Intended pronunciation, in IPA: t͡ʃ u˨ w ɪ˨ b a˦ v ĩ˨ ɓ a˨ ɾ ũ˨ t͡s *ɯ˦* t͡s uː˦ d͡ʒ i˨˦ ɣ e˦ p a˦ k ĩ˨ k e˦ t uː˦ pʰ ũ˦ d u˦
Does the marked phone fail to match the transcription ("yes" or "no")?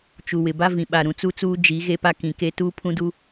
yes